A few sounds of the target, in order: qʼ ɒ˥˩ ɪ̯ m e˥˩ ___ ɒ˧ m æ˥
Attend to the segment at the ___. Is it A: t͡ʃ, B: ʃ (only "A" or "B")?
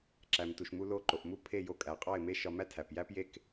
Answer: B